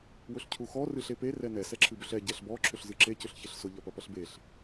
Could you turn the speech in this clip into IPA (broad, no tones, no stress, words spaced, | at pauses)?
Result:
wʊɬcʰuxɔ rɨɬepe rɛnɛ sɛǁʰɨbʏɬɛ ɟɛɬbɔ ǁʰʏɬzɨǁe cʏɬçeɬsʊ ʎɐpɐpɐɬbeɬ